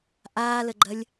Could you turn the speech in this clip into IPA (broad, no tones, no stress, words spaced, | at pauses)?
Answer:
ʔaːləɡ͡ǃɐlʲ